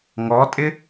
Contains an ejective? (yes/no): yes